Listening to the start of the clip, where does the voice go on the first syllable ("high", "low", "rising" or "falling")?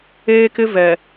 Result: high